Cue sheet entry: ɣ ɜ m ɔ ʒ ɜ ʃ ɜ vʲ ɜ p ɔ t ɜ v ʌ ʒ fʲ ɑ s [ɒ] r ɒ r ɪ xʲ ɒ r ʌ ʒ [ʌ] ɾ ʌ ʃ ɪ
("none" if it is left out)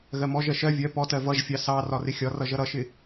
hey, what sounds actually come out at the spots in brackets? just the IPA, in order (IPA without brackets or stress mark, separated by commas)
ɑ, ʌ